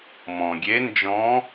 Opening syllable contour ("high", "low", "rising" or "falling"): low